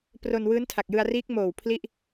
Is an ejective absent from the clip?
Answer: yes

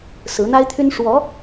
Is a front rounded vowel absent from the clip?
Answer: no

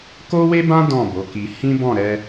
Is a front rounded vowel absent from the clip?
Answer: yes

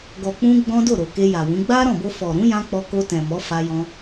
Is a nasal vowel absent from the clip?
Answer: no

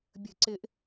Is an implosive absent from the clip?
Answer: yes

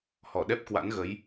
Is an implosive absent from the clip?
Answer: no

